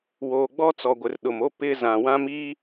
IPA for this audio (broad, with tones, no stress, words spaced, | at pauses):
woː˨ɡ͡bɔ˦t͡sɔ˨ɡʷɪ˨r ɗʊ˨mo˦ pɪ˦ zã˨wã˦mi˦